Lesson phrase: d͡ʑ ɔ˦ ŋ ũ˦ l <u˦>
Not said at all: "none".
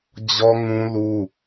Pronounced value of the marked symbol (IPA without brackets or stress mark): u˦